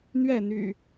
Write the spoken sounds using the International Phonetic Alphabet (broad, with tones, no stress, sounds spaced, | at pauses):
n̪ ɥ ɛ˥˨ n̪ y̰˨˩